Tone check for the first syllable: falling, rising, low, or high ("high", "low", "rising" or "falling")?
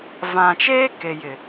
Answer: low